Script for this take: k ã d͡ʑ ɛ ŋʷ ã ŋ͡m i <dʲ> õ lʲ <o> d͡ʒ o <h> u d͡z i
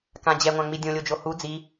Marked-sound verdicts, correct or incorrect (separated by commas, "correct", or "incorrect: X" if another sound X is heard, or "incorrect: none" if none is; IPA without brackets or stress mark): correct, correct, correct